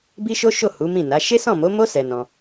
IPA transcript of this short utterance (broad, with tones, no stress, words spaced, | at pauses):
bi˦ʃo˦ʃo˦˨ hu˨˦mĩ˦˨na˨˦ ʃe˦sɔ̃˦˨mo˨˦mo˦ sɛ˧nɔ̃˧